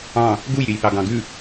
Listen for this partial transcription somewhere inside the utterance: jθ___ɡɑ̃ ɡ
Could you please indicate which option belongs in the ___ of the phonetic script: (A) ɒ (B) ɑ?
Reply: B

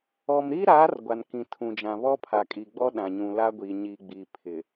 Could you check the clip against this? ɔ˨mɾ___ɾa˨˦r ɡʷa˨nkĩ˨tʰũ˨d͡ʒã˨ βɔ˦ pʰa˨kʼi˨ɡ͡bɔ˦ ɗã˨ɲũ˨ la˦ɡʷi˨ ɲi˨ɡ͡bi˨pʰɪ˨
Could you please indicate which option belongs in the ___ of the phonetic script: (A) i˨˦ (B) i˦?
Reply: B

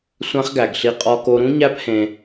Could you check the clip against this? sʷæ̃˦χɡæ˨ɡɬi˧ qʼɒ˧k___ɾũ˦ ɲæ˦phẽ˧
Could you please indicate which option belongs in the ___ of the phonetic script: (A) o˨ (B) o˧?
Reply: B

